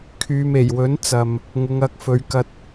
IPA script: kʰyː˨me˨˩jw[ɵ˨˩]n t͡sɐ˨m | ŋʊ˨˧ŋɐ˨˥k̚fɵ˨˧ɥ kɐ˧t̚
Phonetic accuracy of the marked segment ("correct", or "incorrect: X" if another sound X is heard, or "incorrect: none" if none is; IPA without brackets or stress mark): incorrect: ɵ˨˥